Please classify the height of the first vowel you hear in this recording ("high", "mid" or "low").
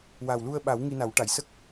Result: low